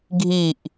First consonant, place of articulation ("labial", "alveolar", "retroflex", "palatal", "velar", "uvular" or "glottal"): velar